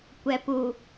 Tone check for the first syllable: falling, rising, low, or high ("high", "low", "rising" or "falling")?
low